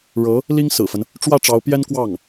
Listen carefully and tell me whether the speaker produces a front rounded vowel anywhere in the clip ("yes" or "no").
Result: no